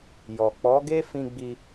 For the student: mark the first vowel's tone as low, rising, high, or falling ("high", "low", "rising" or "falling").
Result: low